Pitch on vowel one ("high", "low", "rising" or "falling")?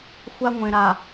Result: high